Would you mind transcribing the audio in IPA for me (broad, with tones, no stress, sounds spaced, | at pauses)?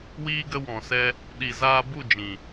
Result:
w iː˧ ɡ ə˧ w ɔ̃˨ s ɛ˦ | ɗ i˨ z aː˧ b u˦˨ d͡ʒ ĩ˨